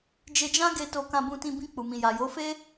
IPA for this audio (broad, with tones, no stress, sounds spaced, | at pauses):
d͡ʒ e˧ d͡ʒ ã˦ ɡ e˧ t o˧ k ã˧ b ũ˧ t ĩ˧ b ĩ˧ k͡p u˨ m ĩ˨ j a˨ j o˨˦ f e˦